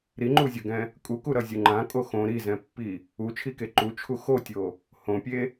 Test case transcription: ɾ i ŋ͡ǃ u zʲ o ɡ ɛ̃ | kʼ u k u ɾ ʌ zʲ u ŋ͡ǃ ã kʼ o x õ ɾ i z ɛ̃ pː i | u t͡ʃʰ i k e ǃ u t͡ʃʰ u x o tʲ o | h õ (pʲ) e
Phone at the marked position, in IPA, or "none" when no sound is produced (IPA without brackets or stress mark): pʲ